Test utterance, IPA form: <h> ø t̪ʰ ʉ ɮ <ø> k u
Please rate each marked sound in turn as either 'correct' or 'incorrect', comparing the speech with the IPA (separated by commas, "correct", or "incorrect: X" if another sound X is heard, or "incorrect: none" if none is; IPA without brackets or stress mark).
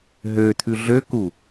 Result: incorrect: ɦ, correct